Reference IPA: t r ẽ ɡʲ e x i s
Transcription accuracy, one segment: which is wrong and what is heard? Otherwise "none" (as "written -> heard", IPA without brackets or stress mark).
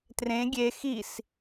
none